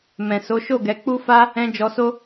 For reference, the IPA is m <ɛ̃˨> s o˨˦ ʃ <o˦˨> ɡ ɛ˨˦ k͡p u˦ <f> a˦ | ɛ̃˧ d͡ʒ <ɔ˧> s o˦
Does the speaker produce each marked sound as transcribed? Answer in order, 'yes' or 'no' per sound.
yes, yes, yes, yes

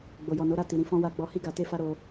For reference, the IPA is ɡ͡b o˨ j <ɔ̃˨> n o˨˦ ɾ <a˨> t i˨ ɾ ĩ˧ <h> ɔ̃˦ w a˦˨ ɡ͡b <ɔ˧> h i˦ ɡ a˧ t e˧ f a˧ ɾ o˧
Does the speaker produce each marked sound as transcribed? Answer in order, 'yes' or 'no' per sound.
no, no, no, yes

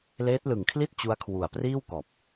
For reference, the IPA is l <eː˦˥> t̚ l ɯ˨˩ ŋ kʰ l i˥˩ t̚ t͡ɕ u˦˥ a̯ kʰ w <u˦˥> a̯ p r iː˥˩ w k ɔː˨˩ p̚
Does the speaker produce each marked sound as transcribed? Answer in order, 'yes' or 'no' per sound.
yes, no

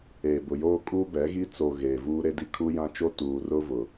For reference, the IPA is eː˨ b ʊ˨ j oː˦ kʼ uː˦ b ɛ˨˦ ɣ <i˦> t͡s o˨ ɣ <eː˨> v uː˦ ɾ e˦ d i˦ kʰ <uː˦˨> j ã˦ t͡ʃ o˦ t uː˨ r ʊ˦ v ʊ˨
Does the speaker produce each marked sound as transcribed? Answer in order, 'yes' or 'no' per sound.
yes, yes, no

